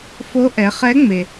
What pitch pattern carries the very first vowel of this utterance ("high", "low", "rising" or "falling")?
rising